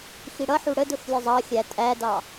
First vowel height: high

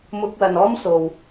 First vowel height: high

